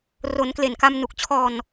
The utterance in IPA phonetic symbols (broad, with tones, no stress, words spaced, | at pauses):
ro˩˦nkle˨˩n ka˧m nu˨˩k̚t͡ɕʰɔː˧n